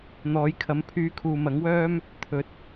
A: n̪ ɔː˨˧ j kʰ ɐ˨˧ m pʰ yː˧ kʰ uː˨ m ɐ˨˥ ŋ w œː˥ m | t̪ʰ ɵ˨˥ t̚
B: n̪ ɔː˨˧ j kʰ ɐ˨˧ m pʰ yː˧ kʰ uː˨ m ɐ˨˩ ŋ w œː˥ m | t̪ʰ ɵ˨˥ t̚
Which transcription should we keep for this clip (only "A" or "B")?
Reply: A